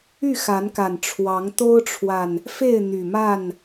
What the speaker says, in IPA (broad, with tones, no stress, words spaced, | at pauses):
y˥˨xa˨˦nka˨˩n ʈ͡ʂʰwɑ˨˦ŋ t̪o˦ʊ̯ʈ͡ʂʰwa˨n | fe˥˨ɪ̯ n̪y˨˩ma˥˨n